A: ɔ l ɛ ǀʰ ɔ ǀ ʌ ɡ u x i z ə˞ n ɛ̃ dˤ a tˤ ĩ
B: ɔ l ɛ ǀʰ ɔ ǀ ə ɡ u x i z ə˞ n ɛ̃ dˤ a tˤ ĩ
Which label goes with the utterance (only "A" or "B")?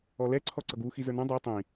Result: A